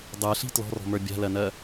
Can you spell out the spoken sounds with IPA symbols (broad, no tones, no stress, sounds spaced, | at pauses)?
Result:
dˤ ə˞ ɬ i̤ t l ɔ̤ r ɔ̤ m ə˞ bʲ a̤ l ɜ n ɜ